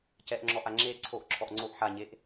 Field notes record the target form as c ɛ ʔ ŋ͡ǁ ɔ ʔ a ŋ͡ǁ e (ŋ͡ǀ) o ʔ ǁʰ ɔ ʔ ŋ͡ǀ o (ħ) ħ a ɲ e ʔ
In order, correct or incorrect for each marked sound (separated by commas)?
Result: incorrect, incorrect